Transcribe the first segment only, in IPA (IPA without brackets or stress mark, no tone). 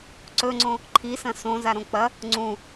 ǀ